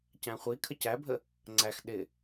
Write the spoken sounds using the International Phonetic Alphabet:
c æ̃ χʷ i kʰ ə c æ bʱ ə | ŋ͡ǀ æ x ɗ ɪ

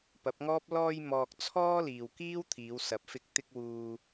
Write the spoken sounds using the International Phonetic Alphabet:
p ɐ˨˥ p̚ ŋ ɔː˥ p̚ l ɔː˧ j m ɔː˨ k̚ t͡sʰ ɔː˥ l iː˨ w k iː˥ w t̪ʰ iː˨˧ w s ɐ˨˥ p̚ f ɪ˧ k̚ t̪ ɪ˧ k̚ w uː˧

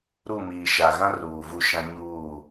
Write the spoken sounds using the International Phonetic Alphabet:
ɾ u˦˨ m iː˨ ʃ a˨ ɣ ã˦ r uː˨ v u˦˨ ʃ ã˦ ɲ uː˦˨

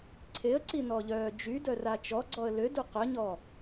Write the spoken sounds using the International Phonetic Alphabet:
ǀʰ e ə̯ ǀ i n ɔ ʎ œː d͡ʒ y d œ r a t͡ʃ ɔ ɡ͡ǀ ɔ ə̯ l ø d u q œ ɲ ɔ

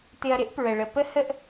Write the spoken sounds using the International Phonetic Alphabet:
t̪ ɪ˧ ɐ̯ ɾ ɪ˦ ʔ p ɹ ə˨ ɭ ə˨ p ə˦ h ə˦ ʔ

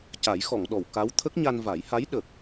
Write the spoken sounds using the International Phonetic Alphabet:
c a˨˩˦ j x ɔ˨˩˨ ŋ ɗ ɔ˨˩˨ w k a˧˥ w t̪ʰ ə˦˥ k̚ ɲ a˧ n v a˨˩˦ j h a˧˥ j ɗ ə˨˩ k̚

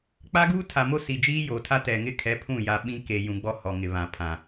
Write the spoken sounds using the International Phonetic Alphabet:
k͡p a˦ ɡ uː˦ tʰ a˨ m o˦ s i˨ d͡ʒ iː˦ j o˨ tʰ a˦ t ɛ˨ ŋ ɪ˦ kʰ ɛ˨˦ pʰ ũ˦˨ j a˨ ɓ ĩ˦ k e˨ j ũ˨ ɡ͡b ɔ˦ h ɔ˨ ŋ ɪ˨ β ã˨ pʰ ã˨

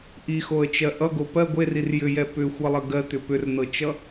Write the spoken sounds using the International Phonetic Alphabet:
ʔ i x o ə̯ t͡ʃ ɜ ʔ ʌ ɡ o p ɜ ɡʷ e r i r j ʏ j ɛ p ʏ xʷ ʌ lˠ ɜ ɡ ɜ t̪ ʏ p ʏ r n ɤ t͡ʃ ʌ

